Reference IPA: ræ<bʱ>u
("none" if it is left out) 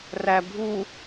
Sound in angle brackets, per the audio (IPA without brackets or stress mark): bʱ